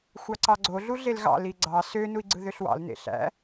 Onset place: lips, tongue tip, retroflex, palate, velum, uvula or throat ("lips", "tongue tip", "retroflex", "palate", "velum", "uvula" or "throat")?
velum